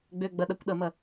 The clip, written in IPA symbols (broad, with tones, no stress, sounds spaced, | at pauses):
ɡ͡b ø˧˥˧ ɡ͡b ɐ˧˥˧ ɗ ɐ˧˥˧ kʷ ɗ ɐ˥˩ m ɐ˥˩